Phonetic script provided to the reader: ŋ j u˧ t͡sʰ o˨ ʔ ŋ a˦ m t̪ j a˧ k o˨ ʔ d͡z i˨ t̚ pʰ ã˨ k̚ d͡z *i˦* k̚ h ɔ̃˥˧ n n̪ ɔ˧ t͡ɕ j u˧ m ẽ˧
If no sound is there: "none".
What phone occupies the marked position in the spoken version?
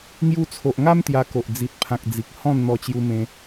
i˨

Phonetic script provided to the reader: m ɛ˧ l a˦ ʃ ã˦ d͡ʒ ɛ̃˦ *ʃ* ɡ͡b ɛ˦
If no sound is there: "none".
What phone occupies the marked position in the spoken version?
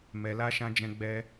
none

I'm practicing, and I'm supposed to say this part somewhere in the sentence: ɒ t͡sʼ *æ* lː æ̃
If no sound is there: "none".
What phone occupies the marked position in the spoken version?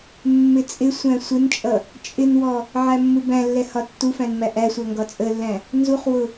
ə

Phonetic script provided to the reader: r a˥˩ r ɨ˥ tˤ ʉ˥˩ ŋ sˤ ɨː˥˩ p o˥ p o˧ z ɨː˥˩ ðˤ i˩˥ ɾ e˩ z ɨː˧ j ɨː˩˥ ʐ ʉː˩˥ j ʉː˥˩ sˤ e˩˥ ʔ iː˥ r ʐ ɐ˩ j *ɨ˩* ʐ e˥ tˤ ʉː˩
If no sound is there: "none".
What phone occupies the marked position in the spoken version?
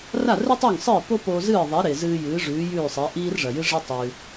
ɨ˥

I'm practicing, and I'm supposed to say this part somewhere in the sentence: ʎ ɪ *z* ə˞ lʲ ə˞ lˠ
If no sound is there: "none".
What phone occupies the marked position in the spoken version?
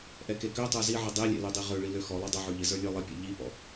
z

